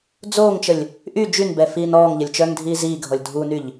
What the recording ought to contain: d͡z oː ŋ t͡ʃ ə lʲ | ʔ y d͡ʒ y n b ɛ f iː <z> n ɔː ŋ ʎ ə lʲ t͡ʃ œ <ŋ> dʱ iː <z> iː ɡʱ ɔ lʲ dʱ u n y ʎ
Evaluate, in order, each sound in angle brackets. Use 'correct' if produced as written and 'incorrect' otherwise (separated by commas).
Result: incorrect, correct, correct